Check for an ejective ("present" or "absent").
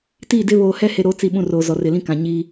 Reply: absent